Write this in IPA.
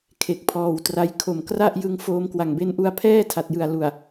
kʰ e˨˩ k̚ pʰ ɔː˨˩ w t r a˦˥ j kʰ o˨˩ m k r a˥˩ ʔ j ɯ˧ ŋ f oː˧ m k w a˨˩ ŋ b e˦˥ n ʔ u˧ a̯ pʰ ɛː˥˩ tʰ a˨˩ t̚ j ɯ˨˩ a̯ l u˨˩ a̯

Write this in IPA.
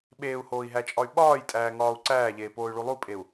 ɓ eː u̯ h oː i̯ ɦ æ t͡ʃʼ ɒ y̯ ɓ ɒː j tʼ æː ŋ ɒː u̯ ǀ æː ʎ eː p oː y̯ ɭ u lˠ u pʼ e u̯

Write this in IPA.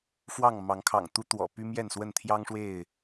f w ɑ˥˨ ŋ m ɑ˨˦ ŋ kʰ ɑ̰˨˩ ŋ t̪ u˦ t̪ w ɔ̰˨˩ p y˦ m j ɛ˥˨ n s w ə˥˨ n t̪ʰ j ɑ˦ ŋ ʂ w e˥˨ ɪ̯

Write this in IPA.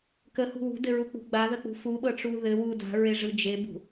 k ə h ṳ w ṳ d ɘ ɹ u k͡p ṳ ɡ͡b a ð ə k͡p ṳ f u ɓ ɤ ʈ͡ʂ u ð ɘ w u d a̤ ɹ e ʐ ɯ d͡ʒ e b ṳ

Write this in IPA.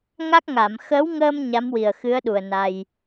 ŋ a˦˥ k̚ ŋ a˨˩˨ m x əː˧˥ w ŋ əː˧ m ɲ a˧˥ m w i˨˩ ə̯ x ɨ˧˥ ə̯ ɗ u˨˩ ə̯ n a˧ j

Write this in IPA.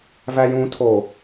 v æ j ũ tʰ o

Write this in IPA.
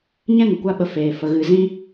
ɲ ɛ̃˦ ŋ ə˨ kʷ a˦ ɓ ə˧ f eː˨ f ə˧ ɣ ɨ˧ z ĩ˦

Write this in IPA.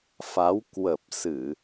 f a˨˦ w k w ə˨˩ p̚ s ɨ˧˩˨

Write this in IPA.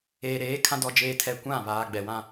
eː˨ ɾ eː˨˦ kʰ ã˦ d ɔ˦ d͡ʒ eː˦ tʰ ɛ˦˨ kʷ ã˦˨ β aː˨ ɡ͡b ɛ˨ w ã˦

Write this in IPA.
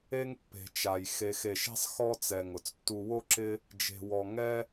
e˦ ŋ pː e̤˨ t͡ʃ a˨ j x e˨ x e˨ ʃ e̤˦ sˤ x ɔ˦ t͡s ɛ˨ ŋ ʊ˨ t͡s tː u˦ w o˦ ǁ ɪ˦ | d͡ʒ e̤˨ w ɔ˨ ŋ ɛ˦

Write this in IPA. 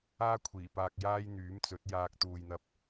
aː˥ kʷʰ iː˨˩ p aː˧ k̚ j aː˥ j n̪ yː˨˥ m t͡s ɵ˨˥ t̚ j aː˧ k̚ t̪ uː˨ j n̪ ɐ˧ p̚

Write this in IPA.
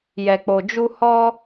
j ɛ˨ k͡p o˨ d͡ʒ u˧ h ɔ˧

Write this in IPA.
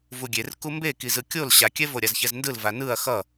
v u ɡʲ e r k u m b e k i z ɯ kʲ o l ɕ a kʲ ɛ v o ɾʲ a z ç ɛ z n d ɯ l v a n ɯ ɐ̯ x ʌ

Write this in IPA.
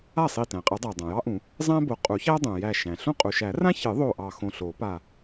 a˥˩ sˤ i˧˩ t æ̃˩ qʼ ɘ˨˩˦ dˤ æ˩ dˤ ã˩ j ɑ˥ ʔ ũ˨˩˦ | zˤ æ̃˥ b o˨˦ qʼ u˨˩˦ ç æ˥ dˤ ũ˩ j æ˧˩ ʃ æ̃˩ ɬ ũ˥ qʼ u˩ ʃ æ˨˩˦ r ã˥ ç ɨ˨˩˦ ðˤ o˧˩ ʔ ɑ˧˩ x õ˧˩ ɬ o˨˩˦ p a˧˩

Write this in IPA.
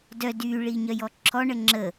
d œ d y ɭ i ɲ œ j ɔ ǁʰ ɔ ɳ ə ŋ͡ǁ ə

